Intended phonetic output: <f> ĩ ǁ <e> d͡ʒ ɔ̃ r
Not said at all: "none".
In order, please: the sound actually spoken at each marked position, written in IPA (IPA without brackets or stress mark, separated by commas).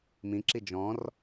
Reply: m, i